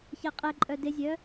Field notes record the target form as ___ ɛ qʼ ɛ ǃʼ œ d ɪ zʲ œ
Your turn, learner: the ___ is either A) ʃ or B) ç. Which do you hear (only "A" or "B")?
B